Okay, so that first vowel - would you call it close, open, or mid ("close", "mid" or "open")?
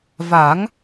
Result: open